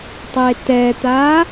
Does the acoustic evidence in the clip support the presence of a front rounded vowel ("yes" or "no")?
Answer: no